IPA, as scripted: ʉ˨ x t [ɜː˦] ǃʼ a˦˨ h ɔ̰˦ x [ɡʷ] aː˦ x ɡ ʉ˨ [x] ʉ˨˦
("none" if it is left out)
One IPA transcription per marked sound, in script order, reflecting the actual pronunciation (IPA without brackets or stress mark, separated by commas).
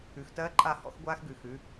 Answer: ɜː˦, ɡʷ, x